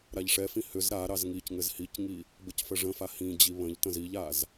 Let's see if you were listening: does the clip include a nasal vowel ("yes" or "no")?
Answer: yes